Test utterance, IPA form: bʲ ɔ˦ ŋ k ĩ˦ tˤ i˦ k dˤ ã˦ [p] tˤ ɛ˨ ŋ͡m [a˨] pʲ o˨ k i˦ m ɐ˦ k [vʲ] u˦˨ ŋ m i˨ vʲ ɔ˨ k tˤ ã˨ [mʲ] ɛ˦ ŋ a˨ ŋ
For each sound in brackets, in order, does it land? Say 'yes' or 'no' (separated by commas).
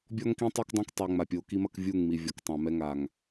no, yes, yes, no